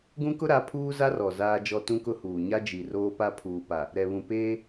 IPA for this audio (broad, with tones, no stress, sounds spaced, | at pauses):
ɡ ũ˦ k ʊ˦ ɾ a˨˦ pʰ uː˦ z a˦ r ɔ˨ z aː˦ d͡ʒ ɔ˦ t ũ˦ k ʊ˦ h uː˨ ɲ a˦ d͡ʒ i˨ r oː˦ p a˦ pʰ uː˨ p a˨ | ɾ ɛ˨ β ũ˨ p eː˦